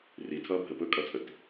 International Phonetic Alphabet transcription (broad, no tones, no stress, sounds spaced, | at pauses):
r i tʰ ʌː bʱ ə p ɵ kʼ ʌ t͡sʼ ə t